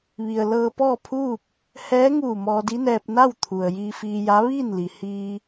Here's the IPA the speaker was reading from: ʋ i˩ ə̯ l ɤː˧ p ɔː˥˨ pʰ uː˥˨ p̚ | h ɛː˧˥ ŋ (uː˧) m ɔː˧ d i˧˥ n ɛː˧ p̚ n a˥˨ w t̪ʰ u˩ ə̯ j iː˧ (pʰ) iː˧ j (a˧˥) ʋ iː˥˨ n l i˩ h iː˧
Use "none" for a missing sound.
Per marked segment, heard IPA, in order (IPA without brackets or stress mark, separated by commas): uː˧˩, f, a˧˥